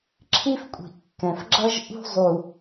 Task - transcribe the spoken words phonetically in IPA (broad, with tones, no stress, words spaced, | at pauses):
ǁʰi˦fkʷʼi̤˨ʔkːɛ̃˨fɡ͡ǁʌ˦ʒ ʔṳ˦zˤu˨